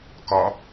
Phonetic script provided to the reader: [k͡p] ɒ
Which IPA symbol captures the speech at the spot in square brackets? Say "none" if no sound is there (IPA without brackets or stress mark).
k